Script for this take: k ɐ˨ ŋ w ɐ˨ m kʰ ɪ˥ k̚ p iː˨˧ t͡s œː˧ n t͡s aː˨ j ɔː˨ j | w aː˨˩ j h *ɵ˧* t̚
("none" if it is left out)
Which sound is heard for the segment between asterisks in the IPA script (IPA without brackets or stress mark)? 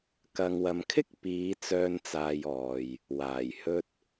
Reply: ɵ˥